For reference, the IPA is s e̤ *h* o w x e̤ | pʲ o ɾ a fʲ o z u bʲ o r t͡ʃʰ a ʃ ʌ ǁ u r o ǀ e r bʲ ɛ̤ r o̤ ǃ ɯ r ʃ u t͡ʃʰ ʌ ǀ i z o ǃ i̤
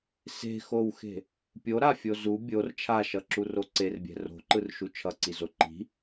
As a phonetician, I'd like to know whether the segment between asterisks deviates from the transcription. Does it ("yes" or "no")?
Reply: yes